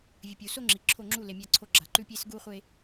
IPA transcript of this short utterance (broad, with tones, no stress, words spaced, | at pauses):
vʲʉ˨pʲu˨so˦ŋ͡ǁi˨ ǁʰo˦˨ŋ͡ǁu˦˨le˨ mʲa˦ǀʰo˦ ɡ͡ǁa˨ǃʉ˦pʲe˦s ɡu˦χʷe˦